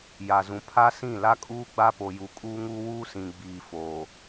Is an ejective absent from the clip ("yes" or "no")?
no